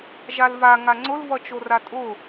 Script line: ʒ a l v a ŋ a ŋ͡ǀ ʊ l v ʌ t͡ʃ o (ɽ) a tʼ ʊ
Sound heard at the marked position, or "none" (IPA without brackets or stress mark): r